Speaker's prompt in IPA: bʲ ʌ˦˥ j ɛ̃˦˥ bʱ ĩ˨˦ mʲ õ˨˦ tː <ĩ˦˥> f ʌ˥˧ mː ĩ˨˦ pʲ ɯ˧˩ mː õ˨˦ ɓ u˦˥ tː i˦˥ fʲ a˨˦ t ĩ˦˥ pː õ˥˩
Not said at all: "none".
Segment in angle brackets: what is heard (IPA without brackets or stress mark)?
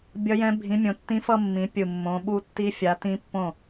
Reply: ĩ˦˥